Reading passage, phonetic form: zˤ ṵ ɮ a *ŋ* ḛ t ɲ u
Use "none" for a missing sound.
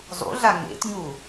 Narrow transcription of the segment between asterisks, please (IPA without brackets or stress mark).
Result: ŋ